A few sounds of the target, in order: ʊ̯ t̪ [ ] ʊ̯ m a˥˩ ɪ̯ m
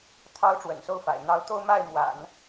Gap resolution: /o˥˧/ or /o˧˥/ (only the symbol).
o˥˧